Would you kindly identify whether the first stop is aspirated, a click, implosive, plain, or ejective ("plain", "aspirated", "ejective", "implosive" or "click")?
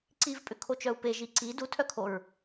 click